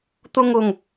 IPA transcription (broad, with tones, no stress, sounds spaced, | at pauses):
t̪ ʊ˧ ŋ ʊ˨˩ ŋ